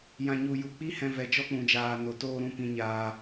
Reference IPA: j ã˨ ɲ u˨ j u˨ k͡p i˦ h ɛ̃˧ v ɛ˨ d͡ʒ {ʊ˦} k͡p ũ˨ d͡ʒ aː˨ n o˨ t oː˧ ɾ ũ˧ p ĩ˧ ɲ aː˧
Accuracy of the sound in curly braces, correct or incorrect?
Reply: incorrect: ɔ˦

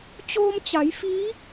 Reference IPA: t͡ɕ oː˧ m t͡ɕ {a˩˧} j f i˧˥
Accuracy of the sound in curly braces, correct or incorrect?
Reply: correct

